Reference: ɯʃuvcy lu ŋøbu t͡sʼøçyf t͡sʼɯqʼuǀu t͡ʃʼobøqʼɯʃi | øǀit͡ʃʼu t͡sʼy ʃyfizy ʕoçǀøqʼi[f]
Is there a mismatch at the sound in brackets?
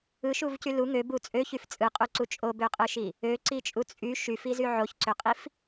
no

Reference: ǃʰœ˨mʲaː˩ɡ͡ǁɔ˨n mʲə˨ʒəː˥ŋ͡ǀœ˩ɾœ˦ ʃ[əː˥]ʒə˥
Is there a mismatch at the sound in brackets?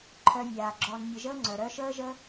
no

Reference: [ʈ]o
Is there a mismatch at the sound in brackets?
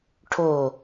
yes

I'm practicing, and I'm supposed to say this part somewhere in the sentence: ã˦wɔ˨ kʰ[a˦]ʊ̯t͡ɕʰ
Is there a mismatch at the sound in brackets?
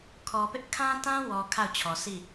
yes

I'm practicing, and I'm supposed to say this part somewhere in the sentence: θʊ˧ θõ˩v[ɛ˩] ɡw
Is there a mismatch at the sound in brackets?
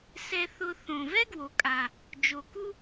yes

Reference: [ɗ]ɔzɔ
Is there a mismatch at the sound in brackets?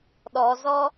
no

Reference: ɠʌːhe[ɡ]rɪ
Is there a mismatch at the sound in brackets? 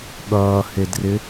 yes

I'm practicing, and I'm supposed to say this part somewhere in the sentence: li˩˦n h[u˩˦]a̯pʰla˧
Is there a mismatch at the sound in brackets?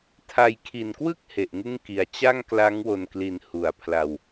no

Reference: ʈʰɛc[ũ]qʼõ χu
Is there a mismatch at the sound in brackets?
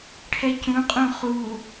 no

